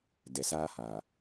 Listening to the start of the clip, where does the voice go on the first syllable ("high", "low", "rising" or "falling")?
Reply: low